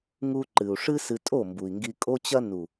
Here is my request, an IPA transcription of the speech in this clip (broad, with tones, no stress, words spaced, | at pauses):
ŋu˧ ǃɨ˨u̯ʂɨ˦sɨ˧tʼo˦˨ mbu˨i̯ŋɡi˧kʼo˦t͡ɕɐ˦ nu˨